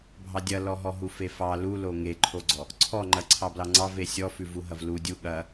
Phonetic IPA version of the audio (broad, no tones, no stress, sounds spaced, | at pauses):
bʱ ɑ dʲ ɐ l ɔ ɦ ɔ ɦ u f e f ɑ l u l o ŋ e ǃʰ o ɡ͡ǀ ɔ | ǀʰ ɔ ŋ͡ǃ ɐ ǀʰ ɑ b l ɑ ŋ͡ǀ ɑ v e sʲ ɔ f ʉ v u ɦ ɐ v l u dʲ u ɠ ɐ